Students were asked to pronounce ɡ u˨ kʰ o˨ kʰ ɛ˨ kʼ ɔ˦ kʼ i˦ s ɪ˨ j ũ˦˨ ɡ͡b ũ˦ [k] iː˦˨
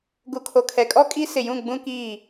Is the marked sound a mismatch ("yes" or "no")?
no